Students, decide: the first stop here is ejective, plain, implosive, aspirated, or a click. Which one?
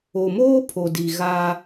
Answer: aspirated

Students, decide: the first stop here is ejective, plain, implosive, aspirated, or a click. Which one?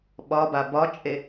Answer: implosive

